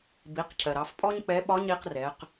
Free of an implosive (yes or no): no